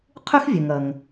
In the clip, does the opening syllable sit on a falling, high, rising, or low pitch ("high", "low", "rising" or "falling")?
high